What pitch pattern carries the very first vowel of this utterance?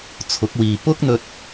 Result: rising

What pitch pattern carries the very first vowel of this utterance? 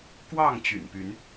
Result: falling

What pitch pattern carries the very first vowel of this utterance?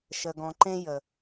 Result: low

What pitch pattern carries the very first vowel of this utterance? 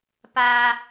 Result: high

